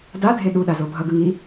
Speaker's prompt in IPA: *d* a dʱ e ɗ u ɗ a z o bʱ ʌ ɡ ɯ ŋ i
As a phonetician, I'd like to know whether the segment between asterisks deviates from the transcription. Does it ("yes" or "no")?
no